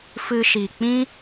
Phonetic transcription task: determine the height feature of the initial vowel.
high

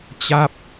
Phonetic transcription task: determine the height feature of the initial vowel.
low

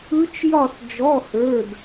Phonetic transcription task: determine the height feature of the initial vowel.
high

